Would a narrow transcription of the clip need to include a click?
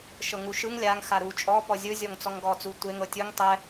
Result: no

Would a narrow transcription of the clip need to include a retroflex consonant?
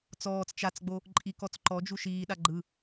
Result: no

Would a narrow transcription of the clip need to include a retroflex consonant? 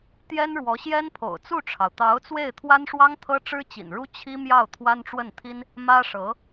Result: yes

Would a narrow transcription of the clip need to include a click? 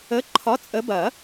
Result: yes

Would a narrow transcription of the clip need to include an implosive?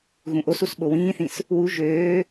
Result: yes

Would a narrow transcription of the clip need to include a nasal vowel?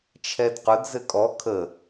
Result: no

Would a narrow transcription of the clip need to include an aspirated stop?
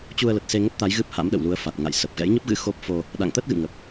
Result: no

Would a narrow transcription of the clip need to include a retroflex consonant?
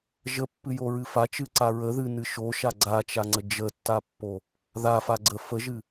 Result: no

